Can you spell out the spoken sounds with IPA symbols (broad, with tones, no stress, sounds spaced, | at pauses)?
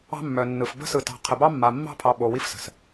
ɑ̤˦ mː œ˨ nː ɯ˨ f b ə̤˦ s ɯ˨ t ɑ̤˨ qʰ ə˨ b ɑ˦ mː a˨ mː ɑ̤˦ pʰ ɑ˨ ɓ o˨ w i˦ f s ə̤˨ s